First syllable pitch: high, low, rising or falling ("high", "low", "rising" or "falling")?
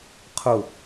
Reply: falling